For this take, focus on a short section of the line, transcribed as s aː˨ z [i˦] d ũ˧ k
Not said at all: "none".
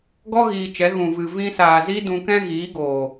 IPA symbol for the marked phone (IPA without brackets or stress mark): i˦